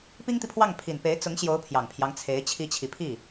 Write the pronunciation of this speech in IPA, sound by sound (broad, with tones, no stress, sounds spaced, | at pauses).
p i˥ ŋ t̪ i˨ pʰ w ɑ˥˩ ŋ pʰ i˨˩ n p e˧˥ ɪ̯ t͡s ʊ˧˥ ŋ ɕ j o˧˥ ʊ̯ pʰ j ɑ˨˩ ŋ pʰ j ɑ˦ ŋ t͡sʰ e˧˥ ɪ̯ t͡ɕʰ i˧˥ t͡ɕʰ i˨˩ pʰ i˥˩